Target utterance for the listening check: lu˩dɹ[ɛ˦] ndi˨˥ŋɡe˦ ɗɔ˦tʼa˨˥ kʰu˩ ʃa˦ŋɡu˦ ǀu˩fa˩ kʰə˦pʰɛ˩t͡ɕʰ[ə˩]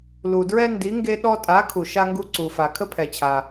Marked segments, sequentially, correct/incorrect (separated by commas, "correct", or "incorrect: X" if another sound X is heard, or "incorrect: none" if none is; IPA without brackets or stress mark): correct, incorrect: a˩